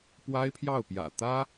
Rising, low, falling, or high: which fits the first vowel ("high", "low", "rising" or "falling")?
high